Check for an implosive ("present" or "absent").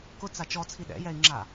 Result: present